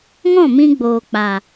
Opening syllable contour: falling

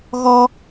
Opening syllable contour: high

